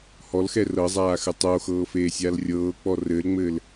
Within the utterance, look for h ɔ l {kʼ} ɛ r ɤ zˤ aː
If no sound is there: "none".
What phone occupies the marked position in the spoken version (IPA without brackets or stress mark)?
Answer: x